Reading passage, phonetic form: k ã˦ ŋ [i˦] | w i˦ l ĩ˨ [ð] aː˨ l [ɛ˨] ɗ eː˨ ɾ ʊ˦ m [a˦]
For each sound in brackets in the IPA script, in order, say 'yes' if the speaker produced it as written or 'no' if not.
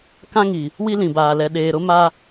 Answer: no, no, yes, yes

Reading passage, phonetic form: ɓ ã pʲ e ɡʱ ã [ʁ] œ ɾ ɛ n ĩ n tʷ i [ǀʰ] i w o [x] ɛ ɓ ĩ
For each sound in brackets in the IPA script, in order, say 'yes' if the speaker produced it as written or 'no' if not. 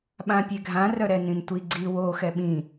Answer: no, no, yes

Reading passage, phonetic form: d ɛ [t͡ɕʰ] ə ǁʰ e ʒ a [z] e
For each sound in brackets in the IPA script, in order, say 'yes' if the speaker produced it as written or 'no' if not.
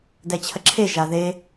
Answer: yes, no

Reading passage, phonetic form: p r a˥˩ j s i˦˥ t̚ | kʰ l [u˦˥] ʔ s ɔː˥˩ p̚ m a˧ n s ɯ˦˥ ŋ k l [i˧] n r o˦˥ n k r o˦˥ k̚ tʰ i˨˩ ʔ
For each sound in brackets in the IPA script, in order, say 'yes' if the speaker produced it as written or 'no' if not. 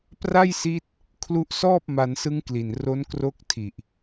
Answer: yes, no

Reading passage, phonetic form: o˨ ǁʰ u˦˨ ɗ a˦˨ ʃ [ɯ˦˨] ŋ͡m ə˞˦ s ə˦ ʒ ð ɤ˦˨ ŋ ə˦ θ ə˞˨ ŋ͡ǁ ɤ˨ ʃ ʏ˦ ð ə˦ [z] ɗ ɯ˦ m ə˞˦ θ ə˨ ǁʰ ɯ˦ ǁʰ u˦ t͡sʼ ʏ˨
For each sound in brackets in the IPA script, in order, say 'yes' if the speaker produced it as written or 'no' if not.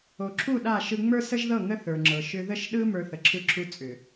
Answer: no, no

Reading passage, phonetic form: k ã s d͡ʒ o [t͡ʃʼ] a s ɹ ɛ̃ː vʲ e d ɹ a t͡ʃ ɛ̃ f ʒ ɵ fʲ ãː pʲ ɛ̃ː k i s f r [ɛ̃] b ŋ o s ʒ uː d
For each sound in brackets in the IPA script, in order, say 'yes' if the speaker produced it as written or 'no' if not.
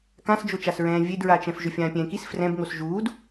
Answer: no, yes

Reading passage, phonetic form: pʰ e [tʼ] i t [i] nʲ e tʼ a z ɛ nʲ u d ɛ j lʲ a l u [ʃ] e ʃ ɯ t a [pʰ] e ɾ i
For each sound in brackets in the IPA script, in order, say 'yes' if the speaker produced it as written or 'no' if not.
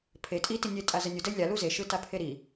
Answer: yes, yes, no, yes

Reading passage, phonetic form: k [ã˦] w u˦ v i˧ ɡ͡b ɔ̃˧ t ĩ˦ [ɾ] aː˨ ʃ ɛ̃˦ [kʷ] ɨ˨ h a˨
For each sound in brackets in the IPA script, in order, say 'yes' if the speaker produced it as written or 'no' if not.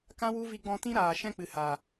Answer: yes, yes, no

